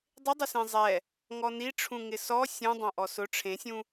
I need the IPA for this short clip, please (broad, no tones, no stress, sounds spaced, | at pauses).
dˤ ɪ dˤ ɪ s ẽ zˤ ɛ | ŋ ɔ n i ʈ͡ʂʰ ũ ŋ ɪ s ɔ sʲ ũ dˤ ã ʔ ɔ s ʊ ʈ͡ʂʰ ẽ sʲ ũ